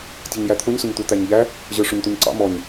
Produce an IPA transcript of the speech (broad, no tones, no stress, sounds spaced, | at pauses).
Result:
tʲ ɛ ɲ j æ t̪ʰ ʊ ɲ s ʊ ɲ t̪ u t̪ æ ɲ ʎ æ | ʑ ə˞ ʂ ʊ ɲ t̪ u ɲ ǀ ɑ̰ m ɔ ɲ